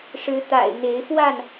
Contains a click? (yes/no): no